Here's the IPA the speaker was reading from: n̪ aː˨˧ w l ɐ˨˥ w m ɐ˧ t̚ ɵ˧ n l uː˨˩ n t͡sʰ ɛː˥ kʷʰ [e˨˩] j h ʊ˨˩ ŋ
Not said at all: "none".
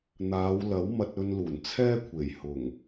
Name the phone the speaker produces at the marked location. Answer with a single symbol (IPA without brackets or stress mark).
e˨˩